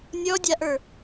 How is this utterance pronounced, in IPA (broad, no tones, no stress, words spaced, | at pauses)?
nʲɔdʲaʔə˞